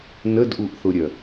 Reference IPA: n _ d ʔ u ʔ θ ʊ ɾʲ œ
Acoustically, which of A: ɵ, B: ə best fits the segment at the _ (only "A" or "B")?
B